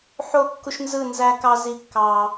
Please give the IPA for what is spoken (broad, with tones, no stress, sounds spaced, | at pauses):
ħ o˦˨ kː u˦ ʃ n z ɯ˦˨ n z æ˦ k ɑ˦ z i˦˨ kː ɑ˦